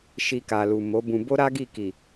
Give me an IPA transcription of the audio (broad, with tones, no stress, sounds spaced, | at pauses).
ʃ i˧ k a˨ l u˨ m o˨˦ b ũ˧ b o˦ ɾ a˦ ɡ i˦˨ k i˨